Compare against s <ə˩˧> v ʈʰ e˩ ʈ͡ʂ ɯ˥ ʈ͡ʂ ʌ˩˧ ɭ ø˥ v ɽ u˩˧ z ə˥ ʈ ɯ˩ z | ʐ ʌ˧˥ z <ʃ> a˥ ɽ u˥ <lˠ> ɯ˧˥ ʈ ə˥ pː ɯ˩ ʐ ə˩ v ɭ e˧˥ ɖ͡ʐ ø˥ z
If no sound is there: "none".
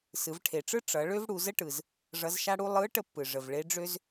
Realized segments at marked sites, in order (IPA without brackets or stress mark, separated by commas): ɯ˩˧, ʃ, lˠ